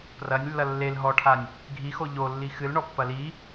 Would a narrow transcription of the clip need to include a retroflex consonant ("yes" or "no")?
yes